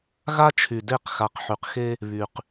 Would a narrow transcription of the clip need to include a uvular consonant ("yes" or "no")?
yes